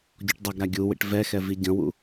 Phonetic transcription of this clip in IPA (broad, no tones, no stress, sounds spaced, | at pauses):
ɟ ɔ ʈ dˤ ɛ ɡ ɾ a ɡʲ u w ḭ ʈ v ɛ x ɛ v i ɟ ə̃ w ṵ